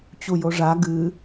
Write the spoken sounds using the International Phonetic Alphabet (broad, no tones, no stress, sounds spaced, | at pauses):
t͡ɕ u j o ʐ a ɡ ɨ